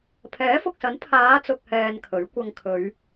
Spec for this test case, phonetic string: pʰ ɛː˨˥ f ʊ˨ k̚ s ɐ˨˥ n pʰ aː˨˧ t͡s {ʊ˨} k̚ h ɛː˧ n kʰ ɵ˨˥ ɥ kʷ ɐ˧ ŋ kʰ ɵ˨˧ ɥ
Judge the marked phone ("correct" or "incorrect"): correct